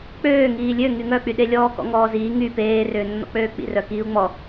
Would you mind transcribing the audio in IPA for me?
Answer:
k͡pøː ŋiːlʲø ŋyŋœk͡pyɗe lʲɔːkɔ̰ŋɔːziː ŋy peːrʏːnːɔ̰k͡pøː k͡pḭrœ kiːu̯ŋ͡mɔ

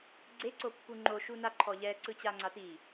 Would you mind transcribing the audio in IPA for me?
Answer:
ɡ͡ǀeǀopːu ŋ͡ǃoʃu naǃʰɔʎɛ ǀɯt͡ɕaŋ͡ǀati

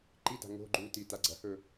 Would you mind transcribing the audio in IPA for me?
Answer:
ǃida̤ ŋo̤ ɡ͡ǃuti taɡ͡ǀɐhɵ

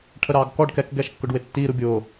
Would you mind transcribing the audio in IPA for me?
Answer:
ʈʰəɾɑːɡkɔɖ kɛkɡɛʃkːʊɖwɪ tːiɾu bʲʊ

